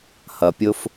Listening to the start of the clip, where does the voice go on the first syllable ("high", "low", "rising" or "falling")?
low